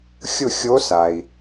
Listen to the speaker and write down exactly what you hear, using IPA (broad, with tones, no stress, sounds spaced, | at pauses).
xʲ ʊ˥˧ xʲ o˦˥ s a˨ i̯